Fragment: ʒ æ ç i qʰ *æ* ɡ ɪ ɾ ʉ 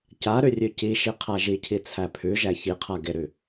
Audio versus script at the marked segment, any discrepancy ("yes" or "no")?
yes